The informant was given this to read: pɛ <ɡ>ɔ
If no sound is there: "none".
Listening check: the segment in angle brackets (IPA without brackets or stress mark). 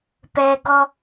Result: ɡ